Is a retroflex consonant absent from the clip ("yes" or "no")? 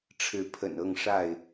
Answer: no